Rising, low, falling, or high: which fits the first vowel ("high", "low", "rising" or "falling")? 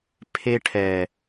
high